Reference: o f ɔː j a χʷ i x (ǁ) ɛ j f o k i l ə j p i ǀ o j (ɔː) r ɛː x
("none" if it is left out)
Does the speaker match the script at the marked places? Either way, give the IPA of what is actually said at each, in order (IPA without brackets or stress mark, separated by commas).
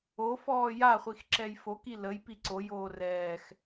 ǁ, oː